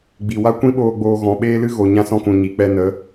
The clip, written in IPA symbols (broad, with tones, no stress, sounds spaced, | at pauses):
ɡ͡b i˨ w a˦ kʷ ĩ˦ ɓ oː˧ ɡ͡b oː˧ ɣ ɔ̃˨ ɓ eː˦ l ɨ˦ ɣ o˨ ɲ ã˧ s ɔ̃˧ k ũ˨ ɲ i˨ k͡p ɛ˧ n ə˨˦